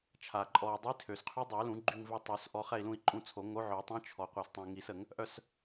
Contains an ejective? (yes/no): yes